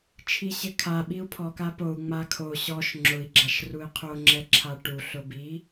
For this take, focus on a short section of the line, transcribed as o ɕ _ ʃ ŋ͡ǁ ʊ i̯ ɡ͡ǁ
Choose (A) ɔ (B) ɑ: A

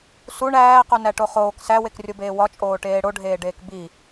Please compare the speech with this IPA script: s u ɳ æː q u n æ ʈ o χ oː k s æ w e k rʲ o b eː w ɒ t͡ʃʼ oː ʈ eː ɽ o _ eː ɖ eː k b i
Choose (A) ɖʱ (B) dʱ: A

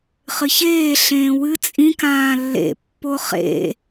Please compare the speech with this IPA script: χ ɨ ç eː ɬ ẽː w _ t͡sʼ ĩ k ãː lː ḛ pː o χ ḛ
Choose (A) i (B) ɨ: B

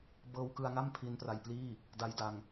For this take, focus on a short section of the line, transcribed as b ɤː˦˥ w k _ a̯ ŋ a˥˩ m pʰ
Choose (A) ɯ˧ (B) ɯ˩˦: A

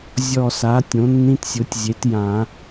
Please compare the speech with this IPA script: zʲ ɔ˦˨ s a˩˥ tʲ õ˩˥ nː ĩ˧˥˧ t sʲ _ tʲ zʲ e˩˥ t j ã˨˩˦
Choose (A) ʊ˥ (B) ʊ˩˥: B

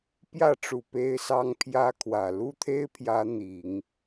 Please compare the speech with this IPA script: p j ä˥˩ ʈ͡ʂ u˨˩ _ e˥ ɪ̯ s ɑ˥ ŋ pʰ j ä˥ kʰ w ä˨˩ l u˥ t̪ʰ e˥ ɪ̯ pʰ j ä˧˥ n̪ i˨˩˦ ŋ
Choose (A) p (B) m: A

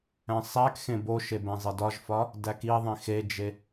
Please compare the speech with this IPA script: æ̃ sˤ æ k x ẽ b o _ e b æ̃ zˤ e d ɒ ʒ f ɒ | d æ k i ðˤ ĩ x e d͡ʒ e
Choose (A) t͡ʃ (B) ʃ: B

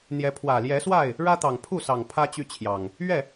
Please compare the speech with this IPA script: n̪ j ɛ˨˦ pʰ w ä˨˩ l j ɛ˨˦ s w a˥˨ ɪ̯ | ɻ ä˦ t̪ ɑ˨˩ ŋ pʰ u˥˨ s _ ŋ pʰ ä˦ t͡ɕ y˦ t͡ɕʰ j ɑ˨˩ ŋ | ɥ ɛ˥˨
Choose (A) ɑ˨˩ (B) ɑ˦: A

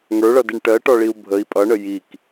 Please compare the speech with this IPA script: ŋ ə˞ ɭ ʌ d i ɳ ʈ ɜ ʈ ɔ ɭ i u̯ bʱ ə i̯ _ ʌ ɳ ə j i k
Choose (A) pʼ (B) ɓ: A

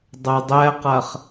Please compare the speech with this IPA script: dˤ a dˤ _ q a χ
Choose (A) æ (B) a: A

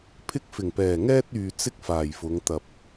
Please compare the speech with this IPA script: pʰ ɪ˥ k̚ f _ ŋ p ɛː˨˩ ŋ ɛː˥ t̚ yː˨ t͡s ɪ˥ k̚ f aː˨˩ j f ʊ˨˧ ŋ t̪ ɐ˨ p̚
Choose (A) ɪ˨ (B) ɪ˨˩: B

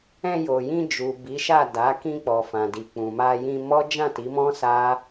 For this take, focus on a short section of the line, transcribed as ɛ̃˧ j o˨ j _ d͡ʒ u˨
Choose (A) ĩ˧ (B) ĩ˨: A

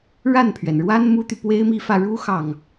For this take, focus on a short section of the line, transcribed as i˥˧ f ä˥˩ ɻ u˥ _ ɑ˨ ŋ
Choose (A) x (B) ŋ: A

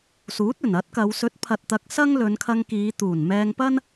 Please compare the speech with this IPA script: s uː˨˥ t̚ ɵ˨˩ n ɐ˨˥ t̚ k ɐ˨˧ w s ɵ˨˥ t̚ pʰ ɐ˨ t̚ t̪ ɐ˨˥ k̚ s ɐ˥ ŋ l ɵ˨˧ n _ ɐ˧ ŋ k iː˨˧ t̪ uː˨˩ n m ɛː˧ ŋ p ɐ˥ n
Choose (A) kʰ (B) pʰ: A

